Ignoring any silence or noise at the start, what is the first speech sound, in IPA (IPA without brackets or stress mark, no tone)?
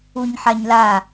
u